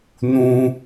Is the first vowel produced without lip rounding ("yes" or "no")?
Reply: no